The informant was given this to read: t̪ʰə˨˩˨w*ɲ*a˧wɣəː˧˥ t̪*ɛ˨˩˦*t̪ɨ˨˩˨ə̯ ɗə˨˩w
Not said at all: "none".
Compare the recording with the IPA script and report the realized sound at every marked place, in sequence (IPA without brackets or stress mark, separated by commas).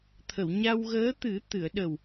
ɲ, ɨ˨˩˦